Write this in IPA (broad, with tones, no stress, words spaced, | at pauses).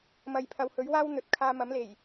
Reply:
mɐ˨jpʰɐ˨whɵ˨˥ɥ waː˥w n̪ɵ˨t̚ kʰaː˧ mɐ˨˥mle˨˩j